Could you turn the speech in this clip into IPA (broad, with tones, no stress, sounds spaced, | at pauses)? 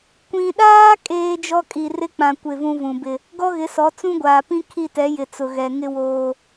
kʷ ĩ˨ ɗ aː˦ kʼ eː˦ d͡ʒ ɔ˦ kʼ i˨ r ɪ˦ k͡p ã˨ kʷ ɪ˦˨ v ũ˦ v ũ˨ b ɪ˦˨ | ɡ ɔ˦ ɣ ɪ˨˦ s ɔ˨˦ t͡s ũ˦ ɡʷ aː˨ p ĩ˦ kʰ i˦˨ t ɛ˨˦ j ɪ˨ t͡s ʊ˨ ɣ ɛ˨ ŋ ɪ˦ w oː˦